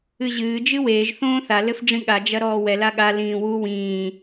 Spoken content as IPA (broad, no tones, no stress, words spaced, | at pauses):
ɨʑɨː d͡ʒɨweːʒ θõːθa lɘfɖ͡ʐĩɠa d͡ʒɐɾɔːwɛ laɠa lĩːwu wĩː